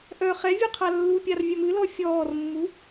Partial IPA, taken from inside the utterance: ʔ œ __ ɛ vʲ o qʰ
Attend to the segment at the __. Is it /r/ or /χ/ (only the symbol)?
χ